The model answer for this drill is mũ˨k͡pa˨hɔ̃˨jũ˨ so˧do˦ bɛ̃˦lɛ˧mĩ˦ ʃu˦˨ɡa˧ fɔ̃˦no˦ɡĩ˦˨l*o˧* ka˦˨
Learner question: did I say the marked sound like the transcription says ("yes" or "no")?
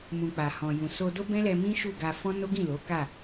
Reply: no